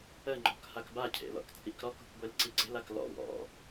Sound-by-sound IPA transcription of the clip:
ə ŋ͡ǃ ɔ̤ k h a k b a cʰ ḛ l ɔ̰ k t͡sʼ i k ɾ ɔ k ṳ k ɡʷ e l ǀ i ǀ e̤ l a k l ɔ̰ w ɔ̰

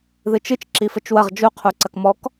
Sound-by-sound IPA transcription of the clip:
ð ɨ t͡ʃ ɨ t͡ʃ ǁ i f ɘ t͡ʃ w ɐ ʁ d͡ʒ u qʰ u ǀ ɐ k m ɔ k

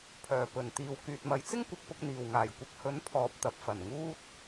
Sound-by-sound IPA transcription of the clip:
pʰ œː˨˩ p ɵ˨˩ n t̪ iː˨ w k yː˨ t̚ m ɐ˨˧ j t͡s ɪ˥ ŋ kʷ ɪ˨˥ k̚ p ʊ˧ k̚ n̪ iː˨ w ŋ aː˨˩ j kʷ ɐ˧ k̚ h ɵ˨˥ n pʰ ɔː˨ p̚ t̪ ɐ˨ p̚ f ɐ˨˩ n ŋ uː˥ t̚

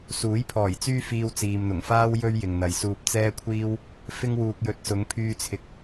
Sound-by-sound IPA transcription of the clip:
s uː˨˥ j pʰ ɔː˨˩ j t͡s yː˥ f iː˧ w t͡s iː˨ m n̪ ʊ˨˩ ŋ f aː˥ w j ɵ˥ ɥ j ɪ˨ ŋ n̪ ɐ˨ j s uː˧ p̚ t͡s ɛː˥ kʷʰ iː˥ w | f ɪ˥ ŋ w uː˧ k̚ j ɵ˨˥ t̚ s ʊ˨˧ ŋ pʰ yː˧ t͡sʰ ɪ˨ k̚

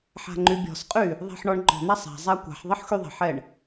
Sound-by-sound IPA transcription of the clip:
ħ a̤ ŋ͡ǃ y bʲ ɔ̤ s qʼ y | ðˤ ɛ̤ ħ ɳ ɔ ɳ ŋ͡ǃ ɔ̤ n̪ a sˤ a̤ zˤ a kʷ a̤ ħ ðˤ ə ħ x y ðˤ ə̤ ħ ɛ ɳ

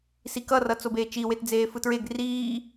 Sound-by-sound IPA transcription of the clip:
s i k ʌ r ʌ t͡s o b eː t͡ʃ i w e t d͡z eː f ɯ t ɹ e ɡ r iː

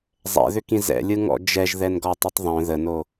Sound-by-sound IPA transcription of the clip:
zˤ ɛ̰ ð ʏ k ĩ z ɛ̰ lʲ ɯ ŋ ɔ̰ d͡ʒ ɛ ʒ ð ɛ n ɡ ɔ tˤ i tˤ ðˤ œ̃ ð ə n o

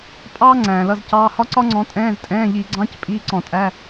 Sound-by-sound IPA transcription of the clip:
pʼ ɑː˥ ŋ͡ǀ æ̃ː˩ l ʌ˧˥˧ z c ɑː˧˥˧ h ɒ˥ ǀ ɒ˥ ŋ͡ǀ ɔ̃˨˦ tʼ ɛ̃ː˧˥˧ z tʼ ɛ̃ː˧˥˧ ʎ i˧˩˧ ɡ͡ǀ ɑ̃˧˥˧ c pʼ iː˧˥˧ ǀ ɔ̃˧˩˧ tʼ æ˧˥˧

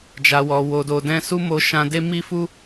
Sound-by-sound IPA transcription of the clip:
d͡ʒ a˨ w ɔ˨ w o˨ d o˨ d ɛ̃˧ s u˦ m o˧ ʃ ã˧ d e˦ m i˦ f u˦

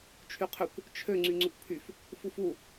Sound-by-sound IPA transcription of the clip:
t͡ʃʰ y qʰ ʏ kʷ | t͡ʃʰ ø ŋ͡ǀ y ŋ͡ǀ ʏ kʷ pʰ y f | f u f u

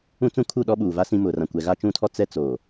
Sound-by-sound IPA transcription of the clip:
ũ˦ t͡s ũ˦ kʰ u˦˨ ɗ ɔ˦ ɓ uː˨ v a˦ s ĩ˦ m ʊ˨ r ã˨ kʷ ɛ˨ ɣ a˦ t͡ʃ ũ˦ tʰ ɔ˦ t͡s ɛ˦ t͡s oː˨

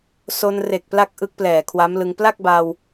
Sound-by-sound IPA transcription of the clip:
s o˧ n r e˨˩ k̚ p l a˦˥ k̚ ʔ ɯ˦˥ k̚ p l ɛː˨˩ kʰ w a˦˥ m l ɯ˧ ŋ p l a˥˩ k̚ b a˧ w

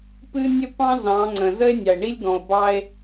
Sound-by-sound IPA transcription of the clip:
p ɨ˦ nʲ ə˦ p ɑ̃˦ z ɑ̃˨˦ ŋ͡ǀ ə̃˨ z ə˦ e̯ nʲ ɑ˨ e̯ ɳ i˦ lʲ ɡ ɔ̃˨ o̯ b ɑ˦ e̯

